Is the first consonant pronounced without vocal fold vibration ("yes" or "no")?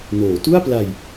no